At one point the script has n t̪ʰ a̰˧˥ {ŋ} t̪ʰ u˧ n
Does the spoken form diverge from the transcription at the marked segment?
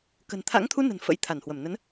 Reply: no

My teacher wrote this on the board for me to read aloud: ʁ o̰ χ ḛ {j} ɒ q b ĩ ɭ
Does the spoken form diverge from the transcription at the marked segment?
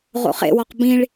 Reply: yes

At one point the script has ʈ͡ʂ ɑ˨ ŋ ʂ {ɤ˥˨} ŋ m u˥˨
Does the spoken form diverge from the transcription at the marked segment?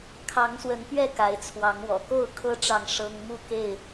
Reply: yes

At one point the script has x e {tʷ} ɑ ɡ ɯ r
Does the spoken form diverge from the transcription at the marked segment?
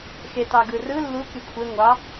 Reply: yes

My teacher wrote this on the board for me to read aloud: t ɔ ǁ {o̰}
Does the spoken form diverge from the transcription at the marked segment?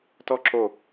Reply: yes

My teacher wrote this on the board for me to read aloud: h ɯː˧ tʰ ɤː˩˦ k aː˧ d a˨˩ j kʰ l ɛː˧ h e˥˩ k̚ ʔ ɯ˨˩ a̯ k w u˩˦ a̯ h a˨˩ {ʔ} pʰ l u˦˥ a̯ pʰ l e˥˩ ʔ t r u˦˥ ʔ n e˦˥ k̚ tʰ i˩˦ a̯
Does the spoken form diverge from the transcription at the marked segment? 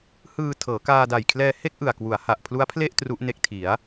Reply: no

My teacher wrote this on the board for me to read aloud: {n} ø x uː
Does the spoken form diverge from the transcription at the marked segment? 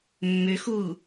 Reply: yes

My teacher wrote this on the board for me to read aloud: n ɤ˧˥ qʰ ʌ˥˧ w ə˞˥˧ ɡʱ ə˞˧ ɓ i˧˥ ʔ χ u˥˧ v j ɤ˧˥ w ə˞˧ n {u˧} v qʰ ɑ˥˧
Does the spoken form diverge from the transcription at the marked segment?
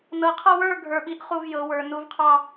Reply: yes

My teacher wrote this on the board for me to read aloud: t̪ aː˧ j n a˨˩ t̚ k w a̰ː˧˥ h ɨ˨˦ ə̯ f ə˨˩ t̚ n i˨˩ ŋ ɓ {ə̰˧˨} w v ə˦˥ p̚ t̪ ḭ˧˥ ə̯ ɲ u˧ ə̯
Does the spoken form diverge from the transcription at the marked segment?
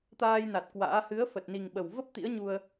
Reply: yes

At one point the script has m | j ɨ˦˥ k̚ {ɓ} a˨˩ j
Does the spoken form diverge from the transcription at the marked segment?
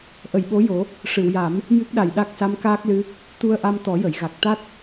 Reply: yes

